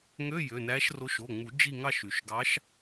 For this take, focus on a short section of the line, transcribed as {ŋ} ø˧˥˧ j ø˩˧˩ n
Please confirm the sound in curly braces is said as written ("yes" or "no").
yes